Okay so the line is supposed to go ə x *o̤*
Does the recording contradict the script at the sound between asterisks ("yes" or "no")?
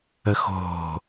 no